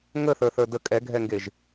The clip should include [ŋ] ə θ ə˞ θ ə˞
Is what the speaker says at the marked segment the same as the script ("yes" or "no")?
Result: yes